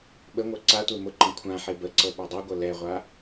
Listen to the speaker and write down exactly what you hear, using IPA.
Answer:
ɓəŋʷɤ ǀatʷe mʊǃə̃ kʷʰãħe bəǀɤ ɓɤdˤɛɡʷɤ lɛʁʷa

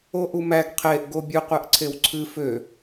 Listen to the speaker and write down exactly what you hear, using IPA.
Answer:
oʔumæɡ qʰeʔ ɡobʲɨqʷɛʔǀʰew ǀʰɨ fø

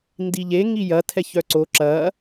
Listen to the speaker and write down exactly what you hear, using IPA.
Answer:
ndiʎe ŋijɐ tʰɛçœǀo ǁɐː

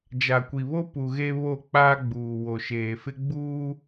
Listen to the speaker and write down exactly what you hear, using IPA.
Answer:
d͡ʒa˨kʷi˨βo˦pu˨ ɣe˦ βo˦˨k͡paː˦ɡ͡buː˨ wo˨ʃeː˨fɪ˦ɡ͡buː˦

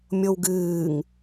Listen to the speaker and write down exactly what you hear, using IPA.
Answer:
mʲowɡɨːŋ

